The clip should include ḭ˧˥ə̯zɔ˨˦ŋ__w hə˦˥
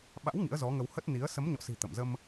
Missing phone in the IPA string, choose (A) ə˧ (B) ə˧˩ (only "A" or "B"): A